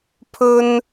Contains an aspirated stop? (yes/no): yes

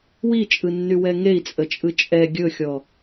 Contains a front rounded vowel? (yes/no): yes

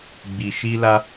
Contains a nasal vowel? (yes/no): no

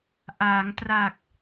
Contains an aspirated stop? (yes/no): no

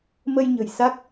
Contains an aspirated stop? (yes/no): no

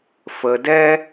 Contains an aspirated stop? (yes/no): no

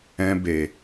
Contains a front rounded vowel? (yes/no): no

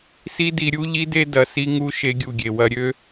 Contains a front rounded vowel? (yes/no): yes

